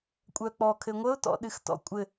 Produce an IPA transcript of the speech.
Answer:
kʷʼ œ k͡p ɔ kʰ ɘ ŋʷ ə ʊ̯ t ɔ̰ ɗ ɨ x t ɔ̰ kʷʼ ɘ

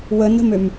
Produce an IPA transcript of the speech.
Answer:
w ə n ə̤ m ø m

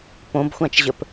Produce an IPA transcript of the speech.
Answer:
p õ b xʷ ã t͡ʃ ʑ ə p

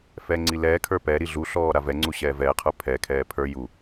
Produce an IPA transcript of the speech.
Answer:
f ɛː ŋ͡ǀ i l ɛː kʰ ə˞ p ɛ ɾ i ɮ u ɬ ɔː ɾ a v ɛ ŋ͡ǀ u ɕ ɛː v ɛː qʰ ə˞ pʰ ɛ kʰ ɛː pʰ ə˞ j u

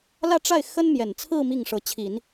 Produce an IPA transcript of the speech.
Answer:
l ä˥˧ ʈ͡ʂ a˥˩ ɪ̯ x ə˥ n m j ɛ˨˩ n t͡sʰ ɹ̩˥˧ m i˥˩ ŋ ʂ ɤ˧˥ t͡ɕʰ i˨˩˦ n

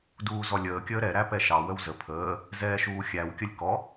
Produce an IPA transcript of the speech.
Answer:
d uː z ɔ lʲ əː kʲ əː ɾ ɛ ɾ æ p ɛ ʃ ɑ w ə w z ə pʰ əː | z ɛː ʃ uː xʲ æ w kʲ ə lʲ k ɔ

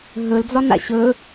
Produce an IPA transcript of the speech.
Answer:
ɦ ɵ l d͡z ɒ n a̰ ɕ ɵ

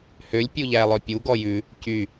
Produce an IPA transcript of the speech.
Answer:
h ø lʲ pʲ u ʎ æ lˠ œ pʲ u ɡ ɔ j ʉ | c y

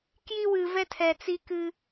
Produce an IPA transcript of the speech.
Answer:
k j i˦ w ɨ˨ v ɛ˦ tʰ ɛ˨ t͡s i˦ k ɨ˦

